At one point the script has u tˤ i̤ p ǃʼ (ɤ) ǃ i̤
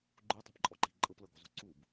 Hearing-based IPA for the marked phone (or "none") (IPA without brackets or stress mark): ɔ